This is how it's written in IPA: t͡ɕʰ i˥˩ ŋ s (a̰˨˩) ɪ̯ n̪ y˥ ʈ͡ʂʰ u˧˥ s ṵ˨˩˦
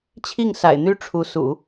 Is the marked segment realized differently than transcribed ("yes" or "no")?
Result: no